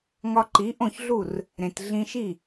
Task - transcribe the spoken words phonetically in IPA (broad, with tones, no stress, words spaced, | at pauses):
ŋɒ˧ǃi˩˥ʔõ˥˩çɮu˥˩r | ɾẽ˩t ɮĩ˧ʃi˥˩